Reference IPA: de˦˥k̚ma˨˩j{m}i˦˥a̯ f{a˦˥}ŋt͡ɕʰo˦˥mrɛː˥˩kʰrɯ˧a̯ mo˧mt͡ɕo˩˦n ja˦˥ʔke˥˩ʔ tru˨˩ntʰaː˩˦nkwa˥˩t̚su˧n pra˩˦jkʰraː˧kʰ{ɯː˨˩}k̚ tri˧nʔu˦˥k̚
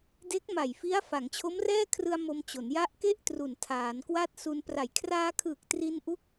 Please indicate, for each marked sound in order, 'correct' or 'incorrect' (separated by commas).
incorrect, incorrect, correct